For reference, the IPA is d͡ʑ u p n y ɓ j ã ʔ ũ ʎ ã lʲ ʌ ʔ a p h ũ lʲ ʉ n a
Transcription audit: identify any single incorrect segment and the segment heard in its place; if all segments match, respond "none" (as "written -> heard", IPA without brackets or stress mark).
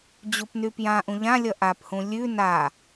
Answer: ɓ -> p